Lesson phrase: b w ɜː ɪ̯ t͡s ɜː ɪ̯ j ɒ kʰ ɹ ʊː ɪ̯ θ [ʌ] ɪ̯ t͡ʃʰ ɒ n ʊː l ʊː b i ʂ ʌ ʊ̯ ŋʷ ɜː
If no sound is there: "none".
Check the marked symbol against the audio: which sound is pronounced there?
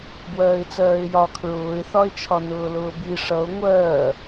ɒ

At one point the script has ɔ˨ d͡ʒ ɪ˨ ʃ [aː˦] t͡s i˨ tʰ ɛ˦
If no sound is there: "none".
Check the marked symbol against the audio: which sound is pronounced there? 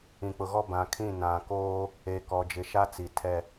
a˦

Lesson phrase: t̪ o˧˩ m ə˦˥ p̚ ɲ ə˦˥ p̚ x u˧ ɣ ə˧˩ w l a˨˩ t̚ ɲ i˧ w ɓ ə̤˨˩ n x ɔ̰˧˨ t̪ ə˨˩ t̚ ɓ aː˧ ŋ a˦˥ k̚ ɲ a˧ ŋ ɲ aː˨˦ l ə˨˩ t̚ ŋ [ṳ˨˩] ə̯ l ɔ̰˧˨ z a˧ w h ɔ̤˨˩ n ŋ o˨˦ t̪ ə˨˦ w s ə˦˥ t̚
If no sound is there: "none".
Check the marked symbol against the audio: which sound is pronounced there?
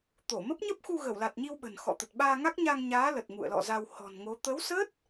ṵ˧˨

